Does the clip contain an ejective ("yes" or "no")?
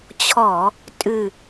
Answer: yes